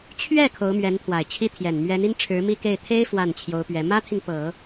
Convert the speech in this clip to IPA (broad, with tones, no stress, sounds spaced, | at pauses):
t͡ɕʰ ɥ ɛ˥˩ kʰ o˧˥ ʊ̯ m ɥ ɛ˧˥ n t̪ʰ w a˨˩ ɪ̯ t͡ɕʰ i˥ t̪ʰ j ɛ˨˩ n m ɥ ɛ˧˥ n i˥ n ʈ͡ʂʰ ɻ̩˧˥ m i˥˧ k e˥˩ ɪ̯ t̪ʰ e˥ ɪ̯ f w a˥˩ n t͡ɕʰ j o˧˥ ʊ̯ p ɥ ɛ˧˥ m ä˥ t̪ʰ i˨ ŋ p ɤ˨˩˦